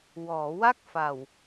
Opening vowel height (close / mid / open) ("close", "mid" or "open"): mid